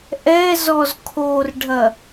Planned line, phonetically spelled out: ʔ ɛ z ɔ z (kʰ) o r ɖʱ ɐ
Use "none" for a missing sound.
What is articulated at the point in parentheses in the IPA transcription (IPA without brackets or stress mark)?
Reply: kʰ